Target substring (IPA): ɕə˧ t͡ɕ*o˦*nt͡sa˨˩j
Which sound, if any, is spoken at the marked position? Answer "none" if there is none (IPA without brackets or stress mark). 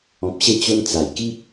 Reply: o˧